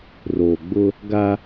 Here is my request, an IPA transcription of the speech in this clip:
roː˨ɡ͡bʊ˦ | ɡa˦

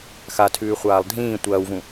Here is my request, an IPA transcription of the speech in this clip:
xatʰʉːχʷaːlˠ dʱĩː tʷɐːwvũ

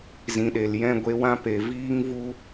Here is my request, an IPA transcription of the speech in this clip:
zĩ˨ɗe˨l jɛ̃˦˨ ɡʷe˧wã˦ pe˨viː˦ŋvu˦

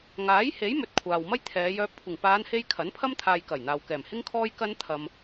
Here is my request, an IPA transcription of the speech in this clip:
ŋaː˨˥jhe˨˥jmɵ˨t̚ kʷʰaː˨wmɐ˥jt̪ʰɛː˨˧ jœː˨p̚kʷʰɪ˨˩ŋpaː˨˧nhe˧j kʰɐ˨˥npʰɐ˥m t̪ʰaː˨j kɐ˨˩j n̪aː˨wkɛː˨˩mhɪ˥ŋkʰɔː˥j kɐ˥nt̪ʰɐ˧m

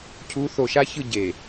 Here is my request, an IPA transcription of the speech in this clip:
cʰuː˨˦θo˨ʃa˦çɯ˦˨ ɟeː˨

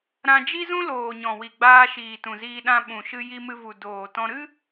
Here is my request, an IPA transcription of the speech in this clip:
ɾã˧d͡ʒi˦zũ˦ loː˨ɲɔ̃˨wi˨ɡ͡baː˧ ʃiː˨tũ˨ziː˧ɗã˧ ɓũ˨ʃɨ˧ ji˧ mɨ˧vu˨ doː˨tɔ̃˧ɾɨ˦

